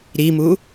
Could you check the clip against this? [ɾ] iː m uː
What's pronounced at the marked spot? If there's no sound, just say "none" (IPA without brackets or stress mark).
ɾ